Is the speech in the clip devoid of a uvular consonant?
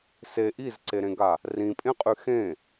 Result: no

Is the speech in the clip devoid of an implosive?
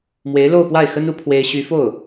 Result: yes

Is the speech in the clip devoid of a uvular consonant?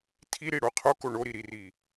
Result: no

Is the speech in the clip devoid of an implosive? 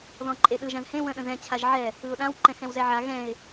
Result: no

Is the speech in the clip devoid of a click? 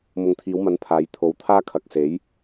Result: yes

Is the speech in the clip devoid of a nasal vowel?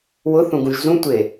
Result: no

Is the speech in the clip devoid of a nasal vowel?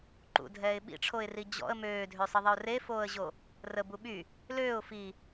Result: yes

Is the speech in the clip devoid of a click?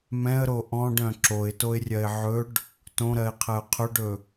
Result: no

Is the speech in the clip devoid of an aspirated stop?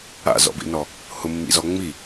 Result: yes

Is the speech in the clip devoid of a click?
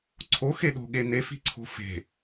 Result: no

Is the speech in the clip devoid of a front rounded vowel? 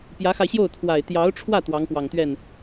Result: yes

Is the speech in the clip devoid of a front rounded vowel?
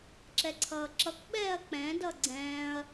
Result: yes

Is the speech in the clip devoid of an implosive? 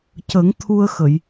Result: yes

